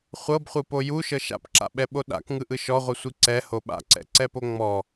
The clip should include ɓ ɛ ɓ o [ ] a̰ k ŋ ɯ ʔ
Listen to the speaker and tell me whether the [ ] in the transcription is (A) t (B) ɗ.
B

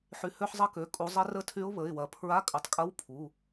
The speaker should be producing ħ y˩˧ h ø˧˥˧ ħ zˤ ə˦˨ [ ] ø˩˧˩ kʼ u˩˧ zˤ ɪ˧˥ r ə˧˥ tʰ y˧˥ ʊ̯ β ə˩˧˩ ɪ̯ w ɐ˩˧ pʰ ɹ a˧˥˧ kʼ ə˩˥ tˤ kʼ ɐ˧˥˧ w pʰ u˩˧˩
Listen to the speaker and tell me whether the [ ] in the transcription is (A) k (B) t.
A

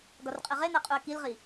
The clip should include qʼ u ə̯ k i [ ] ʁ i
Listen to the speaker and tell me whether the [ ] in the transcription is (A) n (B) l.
B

